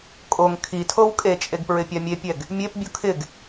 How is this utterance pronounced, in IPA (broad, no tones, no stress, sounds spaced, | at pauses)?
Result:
kʼ o ŋ kʰ i tʰ o w kʼ e t͡ʃʼ e ɡ p ɹ ɪ pʲ a mʲ e pʲ ɛ ɡ | mʲ e p bʲ u kʰ ɪ ɡ